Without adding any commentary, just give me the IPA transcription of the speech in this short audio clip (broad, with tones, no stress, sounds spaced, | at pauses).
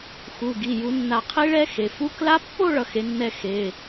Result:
x u˩˧˩ ɡ i˩˧˩ j u˨˩˦ nː a˨˩˦ qʰ i˦˥ ɭ ɛ˦˥ x e˩˧˩ f u˦˥ k l a˦˥ pː o˥˧ ɭ ʌ˨˥ x e˨˥ nː ɛ˥˧ x e˩˧˩